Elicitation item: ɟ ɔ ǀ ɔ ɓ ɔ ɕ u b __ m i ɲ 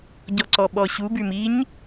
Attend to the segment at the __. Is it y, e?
y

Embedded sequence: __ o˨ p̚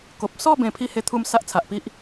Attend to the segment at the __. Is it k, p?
k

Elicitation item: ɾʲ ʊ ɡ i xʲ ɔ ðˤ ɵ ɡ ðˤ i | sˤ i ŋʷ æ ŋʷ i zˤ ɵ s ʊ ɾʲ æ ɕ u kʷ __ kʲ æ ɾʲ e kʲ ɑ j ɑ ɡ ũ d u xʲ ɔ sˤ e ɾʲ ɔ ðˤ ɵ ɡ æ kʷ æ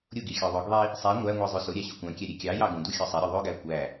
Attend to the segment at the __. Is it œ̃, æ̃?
æ̃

